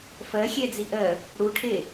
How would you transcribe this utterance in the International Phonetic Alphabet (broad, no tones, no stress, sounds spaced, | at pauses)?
f ɜ xʲ ɛ d͡z i ʔ ɜ | ɽ u ʈʰ e